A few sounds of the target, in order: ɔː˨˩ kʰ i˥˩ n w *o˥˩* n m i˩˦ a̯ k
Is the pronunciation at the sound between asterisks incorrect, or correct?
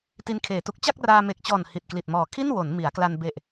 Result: incorrect